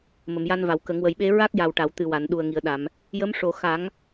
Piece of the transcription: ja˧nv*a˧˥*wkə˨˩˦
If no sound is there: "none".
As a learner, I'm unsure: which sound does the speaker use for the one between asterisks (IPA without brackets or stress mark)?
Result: a˨˩˨